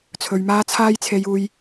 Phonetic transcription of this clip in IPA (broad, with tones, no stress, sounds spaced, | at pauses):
t͡sʰ ɵ˨˧ ɥ m aː˥ t͡sʰ aː˥ j t͡sʰ e˧ j uː˧ j